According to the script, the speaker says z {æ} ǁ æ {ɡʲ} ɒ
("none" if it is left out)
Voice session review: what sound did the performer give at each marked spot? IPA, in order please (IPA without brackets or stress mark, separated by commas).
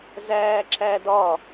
æː, d